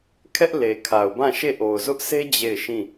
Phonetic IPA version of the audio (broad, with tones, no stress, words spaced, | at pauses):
kʰɛ˦ʔ le˨kʰa˨ʊ̯bã˦˨ʃe˦˨ ʔo˨ʊ̯zʊ˦ʔ sʰe˦ d͡ʑe˦˨ɪ̯ʃĩ˦˨